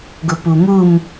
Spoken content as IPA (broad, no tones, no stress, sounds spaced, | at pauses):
ɡ ʊ p u m u m